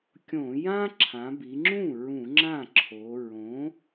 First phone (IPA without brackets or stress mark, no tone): kʲ